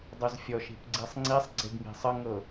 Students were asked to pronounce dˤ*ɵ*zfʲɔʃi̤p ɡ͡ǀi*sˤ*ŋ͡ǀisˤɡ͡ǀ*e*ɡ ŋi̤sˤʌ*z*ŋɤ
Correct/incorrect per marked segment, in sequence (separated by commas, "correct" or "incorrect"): correct, correct, correct, incorrect